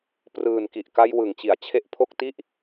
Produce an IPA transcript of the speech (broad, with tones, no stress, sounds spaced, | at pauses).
p r ɯː˨˩ n k i˨˩ ʔ k a˧ j w ɯ˨˩ ŋ t͡ɕ i˩˦ a̯ t͡ɕʰ e˦˥ ʔ pʰ o˥˩ k̚ t i˦˥ ʔ